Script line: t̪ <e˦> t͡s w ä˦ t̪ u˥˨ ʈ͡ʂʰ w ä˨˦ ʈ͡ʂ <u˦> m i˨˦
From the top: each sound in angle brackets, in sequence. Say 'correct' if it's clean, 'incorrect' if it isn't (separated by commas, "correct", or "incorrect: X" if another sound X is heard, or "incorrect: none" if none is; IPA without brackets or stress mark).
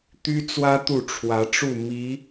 incorrect: y˦, incorrect: u˥˨